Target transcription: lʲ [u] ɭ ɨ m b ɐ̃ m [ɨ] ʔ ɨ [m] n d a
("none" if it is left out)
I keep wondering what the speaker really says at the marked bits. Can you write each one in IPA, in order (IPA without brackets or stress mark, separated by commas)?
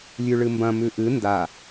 ʉ, ʉ, none